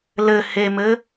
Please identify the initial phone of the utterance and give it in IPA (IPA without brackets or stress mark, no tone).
l